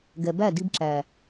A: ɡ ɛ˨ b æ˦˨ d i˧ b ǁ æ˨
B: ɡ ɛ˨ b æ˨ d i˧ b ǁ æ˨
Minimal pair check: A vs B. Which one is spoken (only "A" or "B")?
A